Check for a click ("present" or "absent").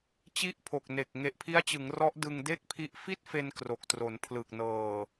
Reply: absent